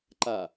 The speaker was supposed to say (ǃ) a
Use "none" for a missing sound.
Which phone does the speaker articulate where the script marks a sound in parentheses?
ǃ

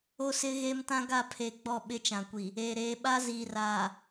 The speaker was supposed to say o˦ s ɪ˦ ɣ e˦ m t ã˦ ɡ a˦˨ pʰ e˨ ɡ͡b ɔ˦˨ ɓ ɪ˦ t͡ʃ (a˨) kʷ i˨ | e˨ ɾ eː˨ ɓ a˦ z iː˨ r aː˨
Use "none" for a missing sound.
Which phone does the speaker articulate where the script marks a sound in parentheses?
ã˨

